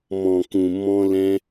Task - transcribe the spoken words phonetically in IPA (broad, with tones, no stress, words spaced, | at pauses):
mɔ̃˨kũ˨ mɔ̃˧ lɛ̃˧